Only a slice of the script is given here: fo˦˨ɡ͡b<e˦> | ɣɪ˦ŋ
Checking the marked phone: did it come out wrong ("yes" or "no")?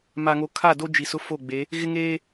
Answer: yes